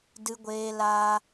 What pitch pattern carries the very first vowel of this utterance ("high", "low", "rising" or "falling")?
high